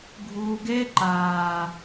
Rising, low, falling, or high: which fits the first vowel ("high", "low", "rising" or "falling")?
low